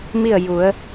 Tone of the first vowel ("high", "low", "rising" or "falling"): falling